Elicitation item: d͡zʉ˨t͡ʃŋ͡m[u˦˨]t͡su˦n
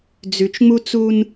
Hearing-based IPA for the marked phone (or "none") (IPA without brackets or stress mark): u˦